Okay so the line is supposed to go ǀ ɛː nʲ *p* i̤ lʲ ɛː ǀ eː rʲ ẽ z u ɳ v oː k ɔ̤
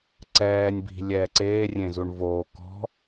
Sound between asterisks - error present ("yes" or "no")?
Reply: yes